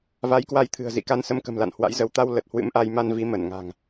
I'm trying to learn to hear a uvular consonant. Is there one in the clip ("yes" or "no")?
no